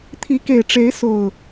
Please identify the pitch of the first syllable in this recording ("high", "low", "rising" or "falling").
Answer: rising